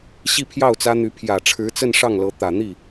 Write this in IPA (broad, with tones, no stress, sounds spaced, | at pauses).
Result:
ɕ i˥˧ pʰ j ɑ˥˩ ʊ̯ t͡s ä˥ n̪ y˧˥ pʰ j ä˨˩ ʈ͡ʂʰ ɻ̩˧˥ t͡s ə˥˧ n ʂ ɑ˥˩ ŋ l ɤ˧˥ t̪ ä˨˩ n̪ i˥˩